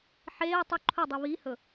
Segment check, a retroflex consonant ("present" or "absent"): absent